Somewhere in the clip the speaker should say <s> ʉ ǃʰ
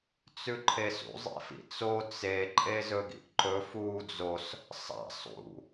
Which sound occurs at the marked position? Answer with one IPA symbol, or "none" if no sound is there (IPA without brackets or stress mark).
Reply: t͡s